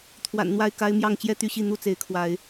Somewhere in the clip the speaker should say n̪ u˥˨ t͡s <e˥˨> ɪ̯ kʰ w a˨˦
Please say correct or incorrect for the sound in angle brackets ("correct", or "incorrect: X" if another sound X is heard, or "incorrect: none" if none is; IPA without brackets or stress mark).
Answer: incorrect: e˨˦